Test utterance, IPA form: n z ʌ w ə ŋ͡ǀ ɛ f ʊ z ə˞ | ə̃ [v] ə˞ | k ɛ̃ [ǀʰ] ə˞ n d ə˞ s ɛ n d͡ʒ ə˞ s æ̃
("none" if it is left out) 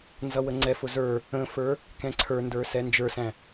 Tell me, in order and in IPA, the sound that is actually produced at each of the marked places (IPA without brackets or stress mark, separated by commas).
f, ǀʰ